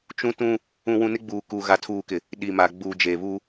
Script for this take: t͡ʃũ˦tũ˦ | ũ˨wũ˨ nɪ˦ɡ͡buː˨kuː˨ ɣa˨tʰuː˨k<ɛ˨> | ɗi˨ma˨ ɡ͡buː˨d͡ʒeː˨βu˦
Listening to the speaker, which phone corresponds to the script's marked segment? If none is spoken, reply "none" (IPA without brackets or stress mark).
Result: ɪ˨